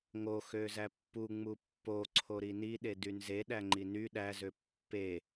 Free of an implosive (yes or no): no